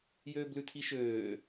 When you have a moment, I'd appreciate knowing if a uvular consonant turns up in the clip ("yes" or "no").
no